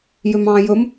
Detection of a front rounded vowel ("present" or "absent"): present